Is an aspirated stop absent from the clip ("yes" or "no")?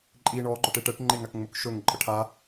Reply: no